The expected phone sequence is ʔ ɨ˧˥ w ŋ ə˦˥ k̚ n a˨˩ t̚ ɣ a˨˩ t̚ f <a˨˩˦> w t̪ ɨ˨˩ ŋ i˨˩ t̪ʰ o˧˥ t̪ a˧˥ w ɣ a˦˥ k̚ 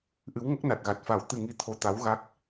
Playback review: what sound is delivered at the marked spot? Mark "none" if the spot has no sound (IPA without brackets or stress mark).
a˨˩˦